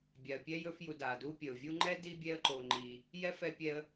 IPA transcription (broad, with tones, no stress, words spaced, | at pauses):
bʲa˨ə̯pʲɛ˥jɵ˦fju˨ da˩du˦pʲə˩ʊ̯ vʲu˦ŋ͡ǃɛ˥ di˥bʲɛ˦ə̯ǃo˨ ŋ͡ǃi˩ | jɛ˥fɛ˦pʲɛ˦ə̯